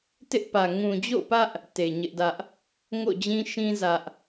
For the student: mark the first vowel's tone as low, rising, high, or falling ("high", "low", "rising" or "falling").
high